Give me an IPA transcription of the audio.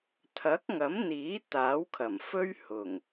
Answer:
t̪ʰ ɐ˨˥ k̚ ŋ ɐ˨˥ m n̪ iː˨˥ t̪ aː˨˥ w kʰ ɐ˨˩ m f ɵ˥ ɥ h ʊ˨˩ ŋ

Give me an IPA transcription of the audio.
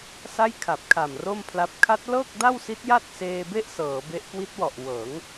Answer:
s a˥˩ j kʰ a˨˩ p̚ kʰ a˨˩ m r o˥˩ m pʰ l a˦˥ p̚ kʰ a˦˥ t̚ l ɤː˥˩ k̚ d a˥˩ w s i˦˥ t̚ j a˥˩ t̚ s eː˧ b e˥˩ ʔ s ɤː˩˦ b e˦˥ ʔ k w i˦˥ t̚ w ɔ˨˩ ʔ w ɤː˩˦ ŋ

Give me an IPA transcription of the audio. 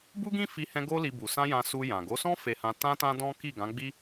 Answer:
b u˦ ɡ ĩ˦ f i˧ h ɛ̃˧ ɡ o˦ l i˧ b u˨ s ã˧ j ã˧ s u˧ j ã˨ ɡ o˨˦ s ɔ̃˦ f e˧ h ã˧ t ã˦ t ã˦ d ɔ̃˦ k i˦˨ ɡ ã˨˦ ɡ͡b i˦

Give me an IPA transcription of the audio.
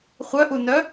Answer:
χʷ œ ʔ u n œ

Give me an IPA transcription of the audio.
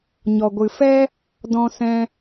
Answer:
ɲ ɔ˨ ɡʷ ɨ˨ f ɛ˦ | d ɔ̃˧ s ɛ̃˧

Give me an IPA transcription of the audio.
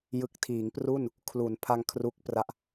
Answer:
j ɯ˨˩ k̚ tʰ iː˩˦ ŋ p r u˥˩ n | kʰ l u˩˦ n pʰ a˧ ŋ kʰ r u˦˥ k̚ p r a˦˥ ʔ

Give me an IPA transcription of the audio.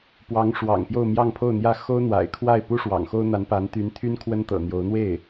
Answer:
p w ɑ˧˥ ŋ ʂ w ɑ̰˨˩ ŋ p j o˥˧ ʊ̯ m j ɑ˥˧ ŋ pʰ o˥˩ ʊ̯ n̪ j ä˥ x o˥ ʊ̯ n̪ w a̰˨˩ ɪ̯ kʰ w a˥˩ ɪ̯ p u˥ ʂ w ɑ̰˨˩ ŋ x o˥ ʊ̯ n̪ a˧˥ n p a˧˥ n t̪ y˧˥ n t̪ʰ y˥ n kʰ w ə˥ n t̪ ɤ̰˨˩ n̪ j o˧˥ ʊ̯ n̪ w e˥˩ ɪ̯

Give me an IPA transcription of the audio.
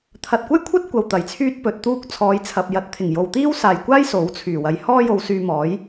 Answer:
t̪ʰ ɐ˨ t̚ kʷ ɐ˥ j kʷʰ ɐ˥ t̚ kʷ ɐ˧ w t̪ ɐ˨˩ j t͡sʰ yː˥ t̚ p ɵ˨ t̚ t̪ uː˥ k̚ t͡sʰ ɔː˨˧ j t͡sʰ ɐ˨ p̚ j ɐ˨˥ t̚ t̪ʰ ɪ˨˩ ŋ j o˨ w t̪ iː˥ w s aː˨ j kʷ aː˥ j s o˨˥ w t͡sʰ yː˨˩ w ɐ˨˧ j h ɔː˥ j o˧ w s yː˧ m ɔː˨˥ j

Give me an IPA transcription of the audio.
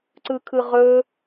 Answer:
ǀ ɯ kʰ ɯ ʁ ɵ

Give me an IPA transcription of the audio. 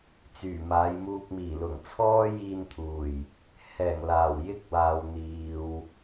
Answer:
t͡s yː˨˩ m aː˨˧ j m uː˧ k̚ m iː˨˩ l ʊ˨˩ ŋ t͡sʰ ɔː˥ j iː˧ n t̪ʰ uː˨˩ j | h ɛː˨˩ ŋ l aː˨˩ w j ɪ˥ k̚ w aː˨ w n̪ iː˨ w

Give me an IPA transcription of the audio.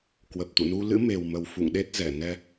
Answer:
k w ə˨˩ p̚ t̪ ṵ˧˨ n u˧ l ɨ̰˧˥ m e˨˩ w m ə˨˩ w f ṵ˧˨ ŋ ɗ e˦˥ t̚ z ɛ˧˩ n ɛ˧

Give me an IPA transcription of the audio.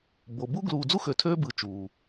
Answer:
b o˩ b u˥ ɡ l uː˨ d͡z u˥ x ø˨ tʰ øː˦ b ɯ˨ t͡ʃ uː˩

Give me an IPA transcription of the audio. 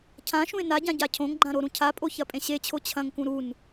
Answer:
cʰ ã ʃ ũ ɪ̯ n a ɟ ã ɟ a cʰ õ ŋ ɡ͡ǃ ã ɾ o ɾ ũ cʰ a pʼ o ç ɐ pʼ ẽ ɕ e t͡ɕʰ o t͡ɕʰ ɐ̃ ŋ k ũ ɾ u n

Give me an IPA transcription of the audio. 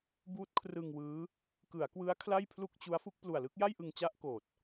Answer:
b uː˦˥ t̚ kʰ r ɯ˧ ŋ w ɯː˦˥ | k ɯ˩˦ a̯ k w ɯ˦˥ a̯ kʰ l a˥˩ j pʰ l u˥˩ k̚ t͡ɕ u˦˥ a̯ f u˥˩ k̚ p l u˨˩ a̯ l ɯ˥˩ k̚ j a˥˩ j ʔ ɯ˧ ŋ t͡ɕ a˥˩ ʔ k oː˨˩ t̚

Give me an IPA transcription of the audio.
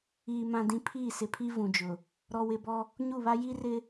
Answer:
iː˨ m ã˨ d ĩ˨ pʰ iː˦˨ s ɪ˨ pʰ i˦ v ũ˨ d͡ʒ ʊ˨ | ɾ ɔ˨ w ɪ˨ b ɔ˦ | ɲ u˦˨ β a˦ j i˦ r ɪ˦

